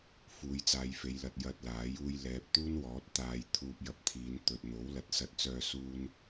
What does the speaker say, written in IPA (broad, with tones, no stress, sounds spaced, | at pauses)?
f uː˨˧ j t͡s aː˨˧ j f e˨˧ j l ɐ˨ t̚ j ɐ˧ t̚ l aː˨˥ j uː˧ j l ɛː˨ p̚ t̪ uː˥ n w ɔː˨˥ t̚ t̪ aː˧ j t̪ʰ uː˧ p̚ j ɐ˨˥ p̚ t̪ʰ iː˨˧ n t̪ ɵ˨ t̚ n̪ o˨˥ w l ɐ˨ t̚ s ɐ˧ t̚ t͡s œː˧ s uː˨ n